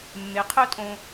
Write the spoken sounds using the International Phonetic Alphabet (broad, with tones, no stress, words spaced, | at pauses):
mːe˨˦qʰœ˦tʼõ˧